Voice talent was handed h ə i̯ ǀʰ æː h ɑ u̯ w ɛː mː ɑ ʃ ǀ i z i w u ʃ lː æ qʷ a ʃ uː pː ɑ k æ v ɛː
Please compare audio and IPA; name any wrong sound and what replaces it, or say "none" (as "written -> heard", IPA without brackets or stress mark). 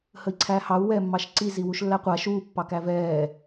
none